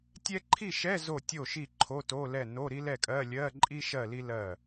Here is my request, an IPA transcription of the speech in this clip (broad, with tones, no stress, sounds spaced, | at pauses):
tʲ ɛ˥ ǃʰ i˥˨ ʃ ɛ˧˥˧ z o˥˨ tʲ o˥˨ ʃ i˥˨ ǃʰ o˧˥˧ t o˧˥˧ l ɛ˥˨ n o˧˥˧ ɾ i˥ l ɛ˥˨ kʼ ɜ˧˥˧ lʲ ɜ˧˥˧ ǃʼ i˥ ʃ ɜ˥˨ l i˥ l ɜ˥˨